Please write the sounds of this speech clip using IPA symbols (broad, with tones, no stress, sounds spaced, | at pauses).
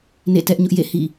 n ḛ˦˨ t ɛ˦ ʔ ɲ ʊ˦ ʔ j ḛ˦˨ h ḭ˦˨